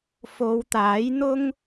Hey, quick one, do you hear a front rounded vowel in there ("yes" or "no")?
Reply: no